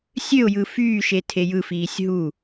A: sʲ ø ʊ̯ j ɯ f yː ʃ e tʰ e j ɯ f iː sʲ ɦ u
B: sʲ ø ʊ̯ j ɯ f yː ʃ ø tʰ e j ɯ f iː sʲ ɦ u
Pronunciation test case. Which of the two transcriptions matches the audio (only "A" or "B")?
A